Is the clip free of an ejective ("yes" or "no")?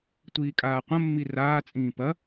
no